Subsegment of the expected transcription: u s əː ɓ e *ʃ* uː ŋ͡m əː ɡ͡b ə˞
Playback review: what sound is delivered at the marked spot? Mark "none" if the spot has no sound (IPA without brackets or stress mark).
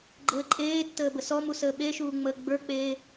ʃ